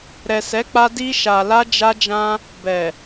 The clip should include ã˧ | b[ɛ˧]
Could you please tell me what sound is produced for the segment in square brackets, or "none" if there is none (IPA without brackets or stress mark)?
ɛ˨